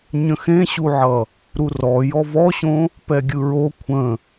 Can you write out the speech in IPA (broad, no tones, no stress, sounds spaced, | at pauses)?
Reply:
ɲ ə̃ x ẽ ɕ u ʕ ʌ | ɾ u r ɔ j ɔ v ɔ ɕ õ | p ɛ ɡʲ ɯ ɹ o kʷʰ ə̃